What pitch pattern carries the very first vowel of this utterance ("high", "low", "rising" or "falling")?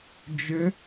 rising